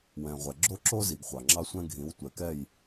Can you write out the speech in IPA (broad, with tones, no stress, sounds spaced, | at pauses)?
w ɛ̃˨ ʁʷ ɛ˨ ɡ͡ǁ o˦ ǁ o˦ z i˨ ɡ χʷ ɑ˨ ŋ͡ǁ ɑ˦ sʷ ɛ̃˦ ɡʱ ĩ˨˦ w tʷ ɛ˨ k ɛ˦˨ j